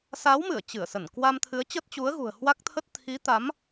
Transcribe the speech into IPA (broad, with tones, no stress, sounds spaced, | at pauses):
s a˨˦ w m ɨ˧˩ ə̯ t͡ɕ ɨ˧˩ ə̯ s ə˧˩ n k w a˧ m t̪ʰ ɨ˨˦ ə̯ t͡ɕ ə˦˥ t̚ t͡ɕ u˨˦ ə̯ ɣ ṳ˨˩ ə̯ h w a˦˥ k̚ t̪ʰ ə˦˥ t̚ t̪ʰ i˨˦ t̪ a˨˦ m